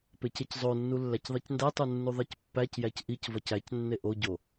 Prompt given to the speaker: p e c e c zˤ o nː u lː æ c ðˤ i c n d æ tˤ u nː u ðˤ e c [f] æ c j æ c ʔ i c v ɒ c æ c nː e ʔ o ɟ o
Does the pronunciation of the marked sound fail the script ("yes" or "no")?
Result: yes